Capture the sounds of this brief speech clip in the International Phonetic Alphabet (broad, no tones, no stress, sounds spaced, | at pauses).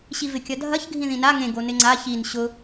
ɕ i v ɪ kʲ ɐ dʱ ɐ ç ɡʱ ĩ ð ĩ n a ŋ ẽ ɡ o n ɪ ŋ͡ǀ a ç i n ɕ ʊ